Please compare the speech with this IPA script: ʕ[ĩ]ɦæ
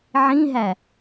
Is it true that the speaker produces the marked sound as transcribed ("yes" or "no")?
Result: yes